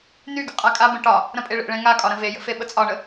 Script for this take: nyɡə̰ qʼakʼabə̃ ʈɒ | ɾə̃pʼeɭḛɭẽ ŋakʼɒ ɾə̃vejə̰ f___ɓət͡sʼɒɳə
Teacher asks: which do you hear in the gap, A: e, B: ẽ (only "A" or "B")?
A